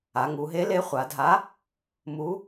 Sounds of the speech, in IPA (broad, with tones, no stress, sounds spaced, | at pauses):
a˩˧ ŋ u˩˧ ɦ e˨˥ l e˨˥ χʷ a˩˧ dʱ a˨˥ | m u˨˥